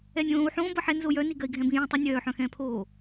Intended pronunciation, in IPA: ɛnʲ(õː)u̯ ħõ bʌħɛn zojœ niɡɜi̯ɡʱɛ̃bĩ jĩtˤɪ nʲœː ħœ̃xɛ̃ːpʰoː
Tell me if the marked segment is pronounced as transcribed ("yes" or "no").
yes